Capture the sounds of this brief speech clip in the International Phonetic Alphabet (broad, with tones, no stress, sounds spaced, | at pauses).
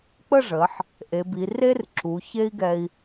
k͡p ə˥˧ ʐ ə˩˧ ħ | ʔ e˩˧ b i˩˧ r e˥ r ǁ u˩˧ ç e˥ i̯ ɡ ɛ˧ i̯